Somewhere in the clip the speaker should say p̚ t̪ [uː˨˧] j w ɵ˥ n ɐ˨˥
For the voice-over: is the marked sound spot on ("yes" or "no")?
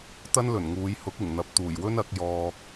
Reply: no